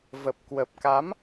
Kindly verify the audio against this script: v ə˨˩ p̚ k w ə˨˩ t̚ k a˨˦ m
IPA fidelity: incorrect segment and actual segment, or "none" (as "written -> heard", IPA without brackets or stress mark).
t̚ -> p̚